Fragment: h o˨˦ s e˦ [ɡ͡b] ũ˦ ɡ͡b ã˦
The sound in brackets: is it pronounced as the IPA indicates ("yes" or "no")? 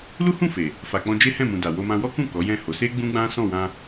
yes